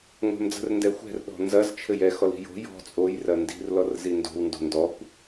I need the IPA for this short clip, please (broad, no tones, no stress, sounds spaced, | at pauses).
ŋʷ ɛ̤ m d͡z ə̤ r n d ɛ xʷ ɛ̤ r ɗ ɔ̤ n z ɐ z t͡ʃʰ ɘ j ɛ x ɔ l i̤ j o̤ j ɔ̤ t͡sʼ o j r ɐ n d i̤ r l ɔ r z i n d o̤ w n d o̤ n d ɔ kʷ